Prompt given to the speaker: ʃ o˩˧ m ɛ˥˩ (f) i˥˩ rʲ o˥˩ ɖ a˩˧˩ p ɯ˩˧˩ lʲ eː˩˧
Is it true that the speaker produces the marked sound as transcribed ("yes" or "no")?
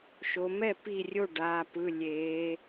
no